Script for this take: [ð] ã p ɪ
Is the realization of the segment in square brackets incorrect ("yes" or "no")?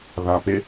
no